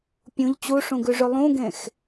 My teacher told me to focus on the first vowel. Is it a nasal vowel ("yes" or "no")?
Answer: yes